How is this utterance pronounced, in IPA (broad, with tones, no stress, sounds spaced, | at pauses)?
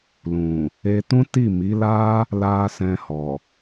l ũ˨ | e˧ t ũ˦ t i˦˨ m i˨˦ l a˦ | l a˧ s ɛ̃˧ h ɔ˨